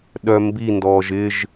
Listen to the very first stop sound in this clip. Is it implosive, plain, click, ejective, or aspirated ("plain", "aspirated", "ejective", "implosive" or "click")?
implosive